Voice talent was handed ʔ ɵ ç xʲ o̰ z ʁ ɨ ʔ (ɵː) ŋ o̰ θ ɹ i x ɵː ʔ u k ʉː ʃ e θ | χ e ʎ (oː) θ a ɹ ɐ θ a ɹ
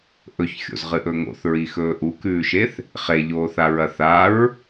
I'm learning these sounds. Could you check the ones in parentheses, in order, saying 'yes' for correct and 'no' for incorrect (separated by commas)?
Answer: no, yes